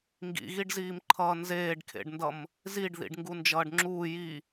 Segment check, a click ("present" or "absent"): present